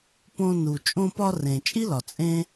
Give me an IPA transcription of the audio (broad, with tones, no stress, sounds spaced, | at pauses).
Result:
p õ˧ n u˩ t͡ʃʼ õ˧ p ɒ˧ r ẽ˩ t͡ʃʼ i˥ l ɒ˩ t͡sʼ ẽ˥